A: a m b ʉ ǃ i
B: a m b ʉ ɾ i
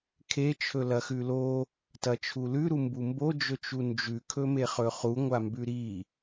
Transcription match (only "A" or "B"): B